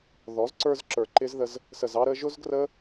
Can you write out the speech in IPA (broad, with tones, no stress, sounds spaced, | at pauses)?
ð ɔ˨˦ z ǀ ə˞˧ z ǁ ə˞˨ ǃ ɪ˧ z ð ə˧ z | s ə˨ z ɑ˧ ɾ ə˧ ʒ ʊ˦ z ɡ r ə˦